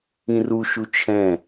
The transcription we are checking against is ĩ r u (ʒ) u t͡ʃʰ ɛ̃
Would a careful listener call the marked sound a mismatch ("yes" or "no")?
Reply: yes